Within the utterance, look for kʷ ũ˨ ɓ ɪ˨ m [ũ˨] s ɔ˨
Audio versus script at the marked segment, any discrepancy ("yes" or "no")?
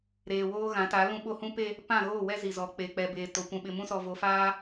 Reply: yes